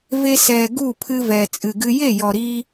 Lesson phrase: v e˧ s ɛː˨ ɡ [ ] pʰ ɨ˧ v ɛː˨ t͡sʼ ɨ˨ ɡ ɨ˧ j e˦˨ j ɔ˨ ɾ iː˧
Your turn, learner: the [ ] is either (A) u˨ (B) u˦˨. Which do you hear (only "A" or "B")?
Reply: B